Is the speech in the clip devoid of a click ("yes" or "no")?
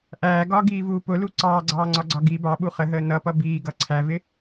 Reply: no